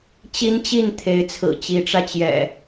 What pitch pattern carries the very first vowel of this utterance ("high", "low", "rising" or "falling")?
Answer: high